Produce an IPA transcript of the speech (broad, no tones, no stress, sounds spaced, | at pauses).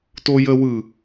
t o j ə w ɯ